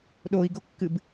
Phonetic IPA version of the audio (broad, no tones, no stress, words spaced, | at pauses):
ɗoi̯ɡokːɨb